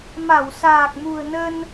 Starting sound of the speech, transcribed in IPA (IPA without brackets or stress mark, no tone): m